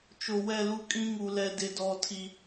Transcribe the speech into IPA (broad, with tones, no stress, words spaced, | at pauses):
t͡ʃo˨wɛ˦˨lu˦ kʼĩ˦ŋu˨lɛ˨ dɪ˨dɔ˨ tʰi˨